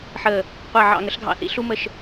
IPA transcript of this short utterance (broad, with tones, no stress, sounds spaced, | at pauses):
ħ əː˧˩ | qʷ ɑ˧˩ ʕ ɑ̰˧˩ ŋ ə˩˥ ɬ ɡʱ ɑ̰˧˩ θ ḭ˩˥ ɬ u˦ m ə˧˩ ʃ